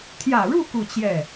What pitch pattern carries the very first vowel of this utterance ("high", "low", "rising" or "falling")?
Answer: low